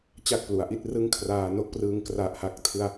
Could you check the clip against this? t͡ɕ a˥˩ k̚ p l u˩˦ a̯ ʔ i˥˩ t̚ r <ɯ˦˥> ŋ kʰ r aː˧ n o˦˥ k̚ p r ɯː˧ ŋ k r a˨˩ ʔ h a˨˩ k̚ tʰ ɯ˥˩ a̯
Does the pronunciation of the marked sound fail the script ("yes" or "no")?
yes